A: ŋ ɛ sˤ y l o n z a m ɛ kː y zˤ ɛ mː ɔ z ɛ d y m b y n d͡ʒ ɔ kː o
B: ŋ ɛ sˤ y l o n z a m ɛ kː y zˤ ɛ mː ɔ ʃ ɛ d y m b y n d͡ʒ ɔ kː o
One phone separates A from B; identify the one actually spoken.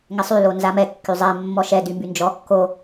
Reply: B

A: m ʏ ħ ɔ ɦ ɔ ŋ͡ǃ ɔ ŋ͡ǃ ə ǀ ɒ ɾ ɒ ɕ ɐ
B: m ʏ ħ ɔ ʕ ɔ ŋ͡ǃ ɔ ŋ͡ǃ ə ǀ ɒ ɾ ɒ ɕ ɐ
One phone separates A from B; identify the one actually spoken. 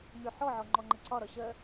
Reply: B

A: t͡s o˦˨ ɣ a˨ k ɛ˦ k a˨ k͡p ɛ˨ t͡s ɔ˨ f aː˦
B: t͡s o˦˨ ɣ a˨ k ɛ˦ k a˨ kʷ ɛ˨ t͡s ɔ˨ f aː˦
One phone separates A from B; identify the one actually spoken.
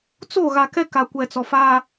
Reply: B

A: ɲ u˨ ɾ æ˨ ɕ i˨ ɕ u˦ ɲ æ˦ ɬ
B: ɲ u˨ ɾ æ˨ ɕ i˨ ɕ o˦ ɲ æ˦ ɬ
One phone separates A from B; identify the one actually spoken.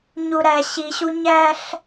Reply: A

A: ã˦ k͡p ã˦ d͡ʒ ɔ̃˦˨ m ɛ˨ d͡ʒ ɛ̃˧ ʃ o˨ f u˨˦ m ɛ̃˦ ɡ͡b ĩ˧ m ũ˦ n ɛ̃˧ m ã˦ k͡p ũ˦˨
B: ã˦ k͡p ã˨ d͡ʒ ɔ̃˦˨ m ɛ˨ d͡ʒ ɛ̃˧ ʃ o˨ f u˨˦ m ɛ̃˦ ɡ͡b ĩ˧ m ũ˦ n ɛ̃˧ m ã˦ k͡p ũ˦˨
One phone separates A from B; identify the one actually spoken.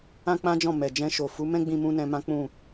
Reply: A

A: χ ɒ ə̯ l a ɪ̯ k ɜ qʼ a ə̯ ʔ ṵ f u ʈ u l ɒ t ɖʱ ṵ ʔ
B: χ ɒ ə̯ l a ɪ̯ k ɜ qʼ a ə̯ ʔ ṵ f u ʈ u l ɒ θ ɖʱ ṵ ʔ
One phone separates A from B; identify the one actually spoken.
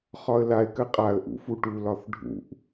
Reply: B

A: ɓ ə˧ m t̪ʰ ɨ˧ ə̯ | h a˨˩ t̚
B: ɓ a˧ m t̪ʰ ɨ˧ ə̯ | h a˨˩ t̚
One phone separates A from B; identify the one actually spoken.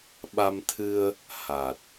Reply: B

